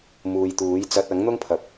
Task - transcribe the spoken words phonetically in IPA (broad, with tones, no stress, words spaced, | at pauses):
muː˨jt̪uː˨˥jt͡sɐ˧t̚ ɐ˨˥ŋ n̪ʊ˥ŋpʰɐ˨p̚